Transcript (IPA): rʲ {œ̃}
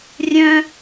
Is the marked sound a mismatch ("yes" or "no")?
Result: no